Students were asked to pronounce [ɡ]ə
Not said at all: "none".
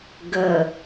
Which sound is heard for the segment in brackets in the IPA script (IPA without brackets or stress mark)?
ɡ